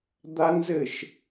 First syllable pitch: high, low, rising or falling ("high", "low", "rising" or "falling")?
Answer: high